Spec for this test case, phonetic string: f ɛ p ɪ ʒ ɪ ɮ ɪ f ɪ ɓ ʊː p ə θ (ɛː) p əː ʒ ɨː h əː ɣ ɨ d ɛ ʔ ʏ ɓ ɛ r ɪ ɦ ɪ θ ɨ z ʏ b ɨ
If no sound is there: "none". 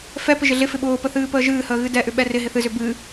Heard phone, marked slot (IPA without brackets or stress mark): ɨː